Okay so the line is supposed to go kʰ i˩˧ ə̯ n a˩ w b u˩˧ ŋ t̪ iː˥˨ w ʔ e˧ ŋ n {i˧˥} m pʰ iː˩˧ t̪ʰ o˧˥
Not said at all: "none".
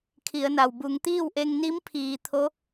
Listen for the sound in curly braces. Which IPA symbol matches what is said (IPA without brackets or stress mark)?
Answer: i˧˥